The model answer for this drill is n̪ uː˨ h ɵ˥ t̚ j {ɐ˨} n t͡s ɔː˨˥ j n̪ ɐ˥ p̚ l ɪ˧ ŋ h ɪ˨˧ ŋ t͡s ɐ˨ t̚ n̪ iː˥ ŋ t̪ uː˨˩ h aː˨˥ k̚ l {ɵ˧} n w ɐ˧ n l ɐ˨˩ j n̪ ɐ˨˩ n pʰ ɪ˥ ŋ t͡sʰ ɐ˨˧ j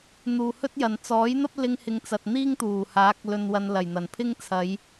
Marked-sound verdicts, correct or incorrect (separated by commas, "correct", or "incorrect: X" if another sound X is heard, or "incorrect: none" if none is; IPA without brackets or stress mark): correct, correct